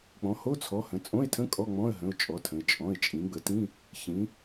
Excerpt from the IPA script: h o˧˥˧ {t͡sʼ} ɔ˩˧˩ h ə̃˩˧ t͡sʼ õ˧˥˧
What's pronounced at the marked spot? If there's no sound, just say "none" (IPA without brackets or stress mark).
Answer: t͡sʰ